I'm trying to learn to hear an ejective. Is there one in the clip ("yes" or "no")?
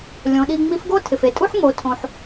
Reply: yes